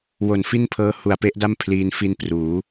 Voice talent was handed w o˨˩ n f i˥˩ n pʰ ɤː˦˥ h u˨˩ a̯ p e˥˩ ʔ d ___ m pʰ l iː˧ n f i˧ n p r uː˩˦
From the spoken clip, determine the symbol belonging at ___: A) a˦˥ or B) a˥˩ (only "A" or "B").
B